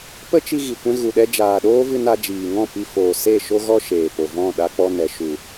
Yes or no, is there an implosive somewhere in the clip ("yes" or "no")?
yes